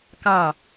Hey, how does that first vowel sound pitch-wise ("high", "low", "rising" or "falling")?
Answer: falling